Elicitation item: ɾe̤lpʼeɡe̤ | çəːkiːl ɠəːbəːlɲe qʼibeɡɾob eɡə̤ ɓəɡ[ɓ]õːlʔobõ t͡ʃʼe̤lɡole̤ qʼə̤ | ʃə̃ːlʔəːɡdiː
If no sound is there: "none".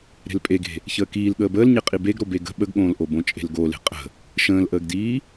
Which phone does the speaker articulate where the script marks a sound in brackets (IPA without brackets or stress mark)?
ɠ